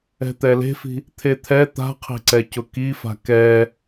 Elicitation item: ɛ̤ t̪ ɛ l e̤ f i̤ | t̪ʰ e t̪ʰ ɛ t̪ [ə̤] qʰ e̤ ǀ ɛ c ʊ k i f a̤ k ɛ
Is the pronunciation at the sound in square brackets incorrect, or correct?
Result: incorrect